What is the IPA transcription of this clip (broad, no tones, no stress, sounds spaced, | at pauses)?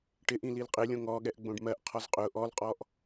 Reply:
ʈ ɪ ʔ ĩ l i l qʼ ɪ lʲ õ ŋ ɔ ɠ ɛ ʔ ɡ͡b õ ɖ m ɜ ʔ qʰ ɔ z qʼ ʊ ʔ ɔ l qʼ ɔ ʔ